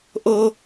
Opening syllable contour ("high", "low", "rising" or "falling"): high